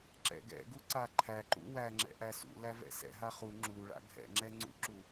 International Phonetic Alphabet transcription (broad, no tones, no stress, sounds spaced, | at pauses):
ǁ ɛ̰ ɡ ɛ̰ ɡ u ǀ a ǃʰ æ ǃ ṵ w æ ŋ͡ǁ ɛ̰ ʔ æ s ṵ l æ v ɛ̰ s ɛ̰ ɦ a χ u ŋ͡ǁ u ɭ a̰ ɡʱ ɛ̰ ŋ͡ǁ ɛ ŋ͡ǀ ṵ ǁ u